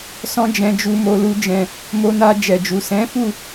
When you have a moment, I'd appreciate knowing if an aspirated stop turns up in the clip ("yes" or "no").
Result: no